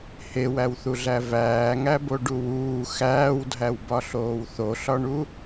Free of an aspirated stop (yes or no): yes